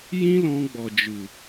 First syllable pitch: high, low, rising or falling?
high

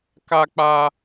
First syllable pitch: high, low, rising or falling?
high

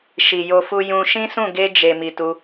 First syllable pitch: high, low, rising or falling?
low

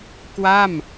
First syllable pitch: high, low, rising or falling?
falling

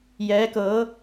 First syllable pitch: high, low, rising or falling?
rising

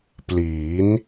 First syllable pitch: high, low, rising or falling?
rising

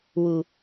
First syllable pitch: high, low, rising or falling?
low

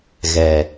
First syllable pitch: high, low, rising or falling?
low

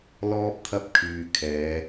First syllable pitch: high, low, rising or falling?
high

